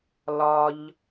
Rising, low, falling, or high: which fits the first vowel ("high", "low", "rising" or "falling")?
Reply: high